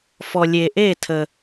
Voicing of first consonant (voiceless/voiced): voiceless